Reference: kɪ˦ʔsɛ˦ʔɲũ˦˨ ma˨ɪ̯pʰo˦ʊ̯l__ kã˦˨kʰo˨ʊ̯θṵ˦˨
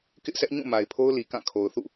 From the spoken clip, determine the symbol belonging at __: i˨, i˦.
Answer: i˨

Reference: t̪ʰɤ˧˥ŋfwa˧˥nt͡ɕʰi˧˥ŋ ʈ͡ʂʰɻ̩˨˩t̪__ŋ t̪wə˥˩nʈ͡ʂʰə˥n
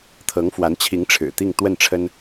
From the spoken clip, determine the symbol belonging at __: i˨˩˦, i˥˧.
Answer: i˥˧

